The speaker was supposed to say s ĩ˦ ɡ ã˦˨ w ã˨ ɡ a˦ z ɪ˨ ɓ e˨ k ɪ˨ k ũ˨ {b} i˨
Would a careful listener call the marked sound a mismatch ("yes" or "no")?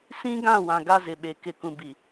no